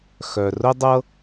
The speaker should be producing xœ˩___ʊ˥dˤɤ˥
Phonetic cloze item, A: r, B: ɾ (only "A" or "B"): A